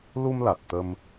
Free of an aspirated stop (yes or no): yes